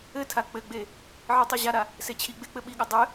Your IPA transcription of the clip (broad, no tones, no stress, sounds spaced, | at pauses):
ɘ tʰ a k͡p ɘ ɡ͡b e | ʕ e tˤ i ʑ a ɾ a | s e t͡ɕʰ i ɡ͡b e k͡p ɘ ɓ i ɠ ɘ dˤ ɘ